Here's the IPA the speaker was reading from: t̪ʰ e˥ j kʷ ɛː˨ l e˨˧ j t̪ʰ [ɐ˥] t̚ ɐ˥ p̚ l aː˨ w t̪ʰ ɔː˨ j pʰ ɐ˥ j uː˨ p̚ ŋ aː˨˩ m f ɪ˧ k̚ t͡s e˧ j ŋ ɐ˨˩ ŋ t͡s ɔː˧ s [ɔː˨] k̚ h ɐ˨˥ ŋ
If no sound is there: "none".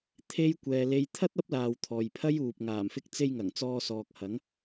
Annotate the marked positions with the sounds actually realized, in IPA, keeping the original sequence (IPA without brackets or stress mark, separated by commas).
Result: ɐ˥, ɔː˨